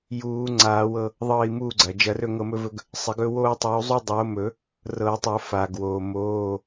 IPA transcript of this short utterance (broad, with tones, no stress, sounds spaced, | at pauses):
j uː˨˩˦ ŋ͡ǀ aː˨˩˦ w ɤ˦˨ | ðˤ ɤː˦˨ i̯ m uː˦˨ ɡ͡ǀ ɐ˩ d͡ʒ ɐ˨˩˦ r ɵ˦˨ ŋ ɤ˦˨ m ɵ˦ v ɵ˦ ɡ | sˤ ɪ˨˩˦ ɡ ɵ˦ w oː˦ tˤ uː˨˦ zˤ u˦ dˤ oː˨˦ m ɵ˨˩˦ | r ɤ˨˩˦ tˤ o˨˩˦ f aː˩ ɡ w oː˩ m oː˩˧˩